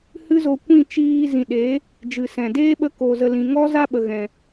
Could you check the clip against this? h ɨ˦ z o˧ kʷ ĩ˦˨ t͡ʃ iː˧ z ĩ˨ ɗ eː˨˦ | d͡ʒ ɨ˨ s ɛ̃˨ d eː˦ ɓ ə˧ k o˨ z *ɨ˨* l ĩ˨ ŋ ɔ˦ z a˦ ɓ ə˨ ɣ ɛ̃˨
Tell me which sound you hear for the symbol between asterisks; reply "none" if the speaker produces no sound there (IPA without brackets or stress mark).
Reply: ə˨